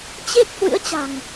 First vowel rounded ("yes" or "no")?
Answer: no